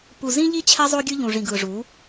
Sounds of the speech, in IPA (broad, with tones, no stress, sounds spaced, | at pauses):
p u˨ z ĩ˦ ʎ i˦ t͡ɕʰ ɛ˦ zˤ o˦ ɡʲ ɯ˦ ʎ ũ˨ ʐ ĩ˨ ɡ ɯ˨ ʐ u˨˦